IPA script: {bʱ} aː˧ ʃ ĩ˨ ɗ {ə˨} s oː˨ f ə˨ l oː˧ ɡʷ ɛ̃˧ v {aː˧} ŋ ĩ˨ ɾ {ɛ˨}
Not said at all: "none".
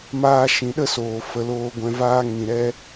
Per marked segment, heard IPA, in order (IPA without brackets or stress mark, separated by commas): m, ə˦, aː˦, ɛ˦